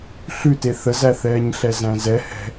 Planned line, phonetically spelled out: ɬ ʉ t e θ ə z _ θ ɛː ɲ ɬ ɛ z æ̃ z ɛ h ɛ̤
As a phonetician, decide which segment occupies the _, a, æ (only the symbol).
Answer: æ